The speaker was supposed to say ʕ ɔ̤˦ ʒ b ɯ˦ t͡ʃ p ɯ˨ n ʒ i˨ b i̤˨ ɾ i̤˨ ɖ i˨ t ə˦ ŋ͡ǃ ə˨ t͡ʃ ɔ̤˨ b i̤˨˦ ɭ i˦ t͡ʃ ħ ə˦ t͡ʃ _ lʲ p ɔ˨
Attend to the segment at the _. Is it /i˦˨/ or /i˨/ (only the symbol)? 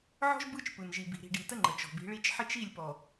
i˦˨